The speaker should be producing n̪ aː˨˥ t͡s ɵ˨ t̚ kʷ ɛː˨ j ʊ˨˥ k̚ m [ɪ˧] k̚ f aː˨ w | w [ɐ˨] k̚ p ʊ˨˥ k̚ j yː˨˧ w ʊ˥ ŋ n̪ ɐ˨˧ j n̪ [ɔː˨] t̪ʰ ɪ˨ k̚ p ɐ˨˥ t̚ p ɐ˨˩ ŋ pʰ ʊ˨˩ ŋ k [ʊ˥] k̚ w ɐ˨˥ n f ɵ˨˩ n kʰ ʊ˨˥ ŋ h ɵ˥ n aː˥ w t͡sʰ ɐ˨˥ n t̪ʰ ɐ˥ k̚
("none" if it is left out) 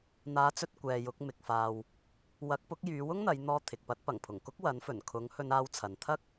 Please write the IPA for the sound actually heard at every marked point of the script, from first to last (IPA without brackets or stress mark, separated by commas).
ɪ˨, ɐ˨˥, ɔː˧, ʊ˥